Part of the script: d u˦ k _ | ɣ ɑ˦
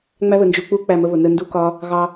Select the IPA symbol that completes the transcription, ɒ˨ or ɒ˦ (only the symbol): ɒ˦